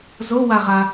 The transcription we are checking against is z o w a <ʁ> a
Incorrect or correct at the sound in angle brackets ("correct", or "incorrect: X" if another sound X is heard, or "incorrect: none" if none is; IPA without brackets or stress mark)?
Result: correct